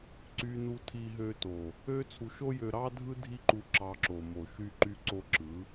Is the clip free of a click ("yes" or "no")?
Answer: no